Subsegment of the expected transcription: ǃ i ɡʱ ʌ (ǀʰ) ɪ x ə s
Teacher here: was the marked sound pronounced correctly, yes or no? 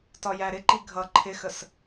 no